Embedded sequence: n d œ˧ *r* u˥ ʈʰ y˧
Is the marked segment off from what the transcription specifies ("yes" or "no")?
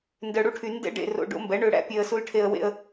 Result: yes